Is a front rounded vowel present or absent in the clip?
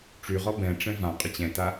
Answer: present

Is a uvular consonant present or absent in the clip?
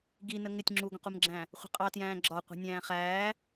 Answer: present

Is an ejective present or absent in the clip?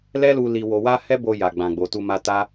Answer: absent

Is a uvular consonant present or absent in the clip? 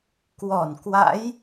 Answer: absent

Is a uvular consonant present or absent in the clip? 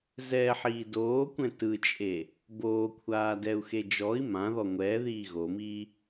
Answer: absent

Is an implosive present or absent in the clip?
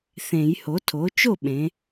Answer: present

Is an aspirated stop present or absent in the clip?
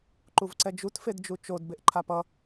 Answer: present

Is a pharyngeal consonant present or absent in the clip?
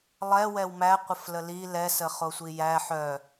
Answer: present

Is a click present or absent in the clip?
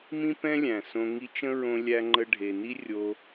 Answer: present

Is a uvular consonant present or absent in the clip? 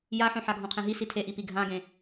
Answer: present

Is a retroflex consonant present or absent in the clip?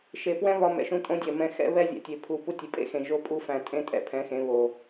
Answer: absent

